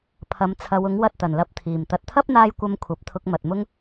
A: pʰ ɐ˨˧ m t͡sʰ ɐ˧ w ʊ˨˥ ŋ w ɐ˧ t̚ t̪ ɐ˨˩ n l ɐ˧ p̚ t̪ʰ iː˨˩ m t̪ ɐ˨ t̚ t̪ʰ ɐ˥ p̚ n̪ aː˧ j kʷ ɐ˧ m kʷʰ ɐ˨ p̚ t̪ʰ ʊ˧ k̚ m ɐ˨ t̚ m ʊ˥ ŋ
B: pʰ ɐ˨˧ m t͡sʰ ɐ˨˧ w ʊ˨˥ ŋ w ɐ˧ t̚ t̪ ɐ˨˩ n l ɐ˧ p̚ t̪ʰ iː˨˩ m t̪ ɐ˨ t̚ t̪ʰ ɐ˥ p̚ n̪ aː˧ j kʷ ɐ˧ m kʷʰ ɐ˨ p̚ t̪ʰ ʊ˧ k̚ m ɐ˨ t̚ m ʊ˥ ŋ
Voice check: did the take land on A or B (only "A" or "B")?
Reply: B